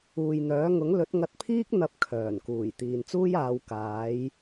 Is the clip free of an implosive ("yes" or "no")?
yes